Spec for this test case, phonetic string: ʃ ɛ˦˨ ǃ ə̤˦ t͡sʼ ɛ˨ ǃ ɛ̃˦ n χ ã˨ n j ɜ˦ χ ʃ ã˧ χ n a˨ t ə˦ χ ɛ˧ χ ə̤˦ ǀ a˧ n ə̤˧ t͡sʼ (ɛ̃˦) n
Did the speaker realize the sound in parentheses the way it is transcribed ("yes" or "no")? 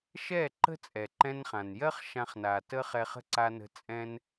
yes